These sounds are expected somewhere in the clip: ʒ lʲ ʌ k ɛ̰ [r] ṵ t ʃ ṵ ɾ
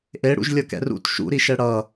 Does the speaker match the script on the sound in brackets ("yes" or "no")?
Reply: yes